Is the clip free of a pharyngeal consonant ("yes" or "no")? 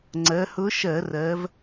yes